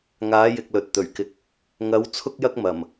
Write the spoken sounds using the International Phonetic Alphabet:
ŋ aː˨˥ j ɪ˨ k̚ l ɵ˨ t̚ t̪ ɵ˨˩ ɥ k ɪ˧ k̚ | ŋ ɐ˨˥ w t͡sʰ ʊ˥ k̚ j ɐ˥ k̚ m ɐ˨˩ m

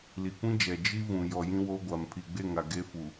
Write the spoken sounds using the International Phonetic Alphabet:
l i˨ kʷ ĩ˦ d͡ʒ ɛ˨ d͡ʒ i˦ v ũ˨ j ɔ˨ j ĩ˦ w o˦ ɡʷ a˨ m pʰ i˨ ɡ͡b e˦˨ ŋ a˨ ɡ e˦ f u˨

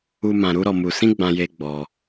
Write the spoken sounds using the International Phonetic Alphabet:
u˧ m ã˧ ɾ u˦ ɾ ɔ˧ m u˧ s ĩ˦ ɡ͡b ã˧ j e˧ ɡ͡b ɔ˧

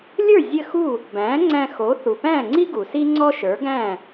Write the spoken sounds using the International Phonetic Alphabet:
lʲ ə˞˥˩ zʲ ɘ˥˩ x u˥˩ | b æ̃ː˩˥ ŋ͡ǀ æ̃˧ x o˩˥ θ u˩ p æ̃ː˥˩ ŋ͡ǀ i˥ ɡ u˩ s i˥ ŋ͡ǀ ɔ˥ ʃ ə˞˩˥ ɡ æ̃ː˥˩

